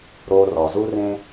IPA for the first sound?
ɾ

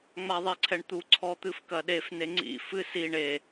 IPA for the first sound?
ŋ͡m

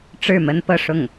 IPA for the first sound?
ʈ͡ʂ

